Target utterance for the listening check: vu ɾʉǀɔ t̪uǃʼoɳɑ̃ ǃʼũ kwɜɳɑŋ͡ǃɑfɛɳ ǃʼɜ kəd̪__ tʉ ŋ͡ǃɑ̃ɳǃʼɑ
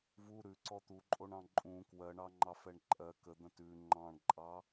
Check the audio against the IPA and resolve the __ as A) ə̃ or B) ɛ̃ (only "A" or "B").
A